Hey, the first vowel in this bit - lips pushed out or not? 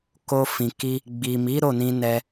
yes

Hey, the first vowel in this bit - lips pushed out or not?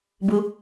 yes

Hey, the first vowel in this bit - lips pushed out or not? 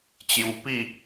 yes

